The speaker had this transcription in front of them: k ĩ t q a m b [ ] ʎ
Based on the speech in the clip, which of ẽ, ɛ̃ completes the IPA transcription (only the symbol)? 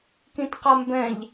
ɛ̃